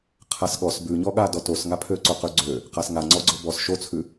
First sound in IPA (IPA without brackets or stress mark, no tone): qʰ